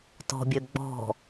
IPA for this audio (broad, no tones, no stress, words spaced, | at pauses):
tɔ̤bʲø ɡ͡bɔ̤